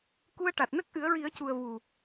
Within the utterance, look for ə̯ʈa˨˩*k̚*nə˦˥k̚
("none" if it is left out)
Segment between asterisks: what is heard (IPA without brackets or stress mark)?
t̚